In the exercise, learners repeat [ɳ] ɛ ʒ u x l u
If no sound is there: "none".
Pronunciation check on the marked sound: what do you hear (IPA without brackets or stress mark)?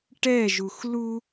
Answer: ʈ